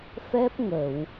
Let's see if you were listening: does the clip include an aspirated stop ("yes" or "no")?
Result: no